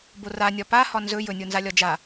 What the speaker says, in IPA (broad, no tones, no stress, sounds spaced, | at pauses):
b o r a nʲ ɒ p a h ɒ n z ɵ j ɵ nʲ o n z a lʲ ɒ d͡ʒ a